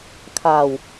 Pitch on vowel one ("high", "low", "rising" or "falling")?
low